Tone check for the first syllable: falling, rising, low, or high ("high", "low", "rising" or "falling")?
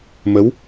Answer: rising